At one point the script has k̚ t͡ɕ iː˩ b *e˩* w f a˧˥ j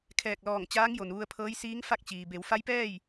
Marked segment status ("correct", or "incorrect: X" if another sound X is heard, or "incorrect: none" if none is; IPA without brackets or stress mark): incorrect: e˩˧